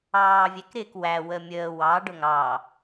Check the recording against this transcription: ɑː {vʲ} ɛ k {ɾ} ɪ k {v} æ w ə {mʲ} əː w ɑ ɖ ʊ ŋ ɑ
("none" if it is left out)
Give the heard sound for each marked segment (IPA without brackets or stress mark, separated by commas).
vʲ, ɾ, w, mʲ